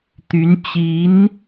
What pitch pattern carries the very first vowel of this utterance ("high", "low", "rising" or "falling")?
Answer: rising